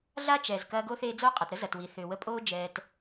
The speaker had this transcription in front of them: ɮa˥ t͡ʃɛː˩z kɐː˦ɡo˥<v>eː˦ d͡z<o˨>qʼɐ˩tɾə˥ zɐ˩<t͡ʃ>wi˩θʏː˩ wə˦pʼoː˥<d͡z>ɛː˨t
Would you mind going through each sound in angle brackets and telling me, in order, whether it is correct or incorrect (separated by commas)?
incorrect, incorrect, incorrect, incorrect